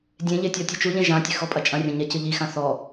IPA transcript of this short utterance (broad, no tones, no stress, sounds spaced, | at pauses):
dʲ ẽ ʎ e tʲ ɔ tʲ ɐ t͡ʃ u ʎ ẽ ʒ ã tʲ ɘ x ɔ pʼ ɐ t͡ʃʼ ɐ̃ rʲ ɐ̃ ɲ ɛ c ɨ ʎ i x ã θ ɔ